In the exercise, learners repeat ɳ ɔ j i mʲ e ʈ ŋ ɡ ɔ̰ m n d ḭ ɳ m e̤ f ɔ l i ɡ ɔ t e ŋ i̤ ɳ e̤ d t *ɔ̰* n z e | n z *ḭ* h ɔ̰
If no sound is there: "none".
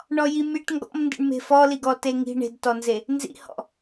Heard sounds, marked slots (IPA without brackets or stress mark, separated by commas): ɔ, ḭ